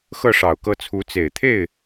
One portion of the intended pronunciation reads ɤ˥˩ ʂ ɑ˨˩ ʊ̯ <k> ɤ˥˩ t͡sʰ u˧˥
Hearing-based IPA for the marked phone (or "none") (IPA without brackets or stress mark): k